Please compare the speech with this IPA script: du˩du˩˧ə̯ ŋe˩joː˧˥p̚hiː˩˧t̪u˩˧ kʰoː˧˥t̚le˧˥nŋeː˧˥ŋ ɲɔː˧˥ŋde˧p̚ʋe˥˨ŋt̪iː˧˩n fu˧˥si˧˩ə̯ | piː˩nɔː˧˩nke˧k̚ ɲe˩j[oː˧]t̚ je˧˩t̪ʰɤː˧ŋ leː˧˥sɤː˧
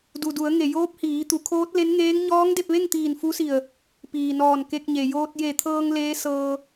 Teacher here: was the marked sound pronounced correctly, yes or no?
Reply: yes